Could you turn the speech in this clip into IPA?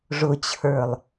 ʐ ʊ t͡ɕʰ ə˞ lˠ

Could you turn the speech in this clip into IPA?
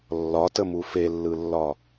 lː ɒ t ə m u f e lː ɯ lː ɒ

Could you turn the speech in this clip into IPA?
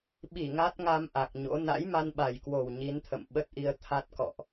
ɓ i˧˩ ŋ a˦˥ t̚ ŋ a˧ m ʔ a˨˩ k̚ ɲ o̰˧˥ n a̰˧˥ j m a˧ n ɓ a˨˩ j k w o˨˩ w ɲ i˨˦ n t̪ʰ ə̰˧˨ m ɓ ə˦˥ t̚ ʔ i˧ ə̯ t̪ʰ a˦˥ t̚ k ɔ̰˧˨ ʔ

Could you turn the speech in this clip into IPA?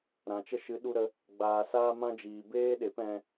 ɾ ã˨ t͡ʃ ə˦ ʃ ɨ˨˦ ɗ u˧ ɾ ə˧ | ɡ͡b aː˨ s aː˦ m ã˦ d͡ʒ iː˨ b eː˦ ɗ e˨˦ p ɛ̃˧

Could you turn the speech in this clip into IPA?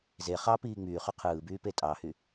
z e χ ɑ p iː ŋ͡m yː χ y qʰ ɯː b yː p e tʼ ɑ h y

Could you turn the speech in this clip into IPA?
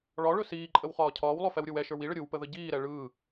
ɭ ɒ ɭ ɵ s iː ǃʼ ə w χ ɒː cʰ ɒː w lˠ ɵ f ɛ w ɾʲ ɯ w ɛ ʃ ə˞ w i ɭ ə ɾʲ ɯ w p ə ð ə ɟ iː ɾ ɛ ɭ ɯː

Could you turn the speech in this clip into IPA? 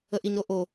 ə ʔ i ɲ ɾ o ʔ o

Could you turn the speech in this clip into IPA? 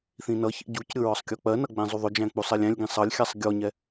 θ ĩ n ʌ ç ḭ ɟ u c ɾʲ ʊ ɹ ɒ sˤ kʲ ɔ k͡p ɜ n ʌ ɡ͡b ɛ̃ zˤ u ðˤ ʊ d͡ʒ æ̃ k͡p u sˤ ɛ lʲ æ̃ lʲ ɡ ĩ sˤ ʌ lʲ xʲ æ sˤ ɡʲ ɔ ɲ ɛ

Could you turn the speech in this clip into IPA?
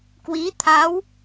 k w i˨˦ t̪ʰ a˨˦ w

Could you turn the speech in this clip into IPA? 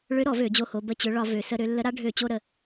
ɭ ø˧˥ ɾ ɔ˧˩˧ v ø˧˩˧ d͡ʑ o˧ h o˩˧ b ə˧ t͡ɕ ø˩˧ ɭ ɒ˧˩˧ v ø˩˧ s ə˧ ɾ ø˧ lː ə˧˥ ɾ a˧˥ ɖʱ ø˧˩˧ t͡ɕ o˧ ɾ ə˩˧

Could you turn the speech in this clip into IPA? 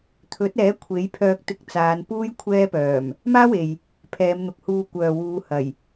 t̪ʰ ɵ˨˥ t̚ ɛː˨˥ kʷʰ e˨˥ j pʰ œː˧ k̚ t̪ ɪ˧ k̚ t͡s aː˨˧ n p uː˥ j kʷʰ ɛː˥ p œː˨˩ m | m aː˥ w e˨ j | pʰ ɛː˨˧ m n̪ ʊ˨ k̚ h uː˧ kʷ œː˨ w uː˨˧ h ɐ˨˩ j

